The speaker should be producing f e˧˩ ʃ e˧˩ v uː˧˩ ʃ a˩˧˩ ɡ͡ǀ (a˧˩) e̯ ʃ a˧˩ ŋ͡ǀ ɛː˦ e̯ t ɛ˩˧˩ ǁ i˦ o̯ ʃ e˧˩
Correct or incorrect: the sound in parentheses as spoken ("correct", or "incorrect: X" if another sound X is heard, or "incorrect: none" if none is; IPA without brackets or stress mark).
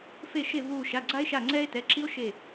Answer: incorrect: a˦